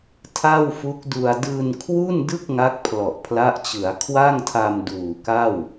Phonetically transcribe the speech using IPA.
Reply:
tʰ a˥˩ w f u˦˥ k̚ d u˧ a̯ d ɯː˧ n kʰ w u˥˩ n d ɯ˥˩ k̚ ŋ a˦˥ k̚ pʰ l ɔ˨˩ ʔ pʰ l a˦˥ ʔ t͡ɕ ɯ˩˦ a̯ kʰ w a˥˩ ŋ tʰ a˧ m d uː˨˩ k a˥˩ w

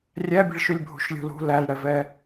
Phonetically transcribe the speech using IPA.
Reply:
rʲ æ bʲ ə̤ ɭ ʃ y lʲ bʱ ṳ ʃ lʲ ṳ l ṳ l æ l ɽ ɛ v ɛ

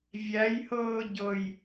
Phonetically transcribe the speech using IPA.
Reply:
vʲ æ j h ɤː ɟ ɤ j

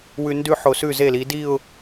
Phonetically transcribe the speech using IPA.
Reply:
w ʉ˧ n d ʉ˥˧ ħ o˧˩ s ʉ˧˩ z e˧˩ l i˩˧ d i˥˧ ʊ̯

